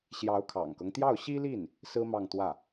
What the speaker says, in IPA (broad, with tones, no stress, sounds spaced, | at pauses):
ɕ j ɑ˧˥ ʊ̯ kʰ ɑ̰˨˩ ŋ k ɤ˦ ŋ t̪ j ɑ˥˩ ʊ̯ ɕ i˥ l i˥˩ n | s ɹ̩˥ m ɑ˥˧ ŋ t̪ w ä˥˩